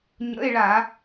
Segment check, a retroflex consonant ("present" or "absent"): present